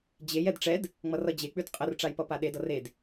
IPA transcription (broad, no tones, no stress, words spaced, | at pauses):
d͡ʑej ɛdʈ͡ʂɛd | ŋ͡mʌrʌd͡ʑe k͡pʉdqʼər ʈ͡ʂajpʌpaɗed ʌred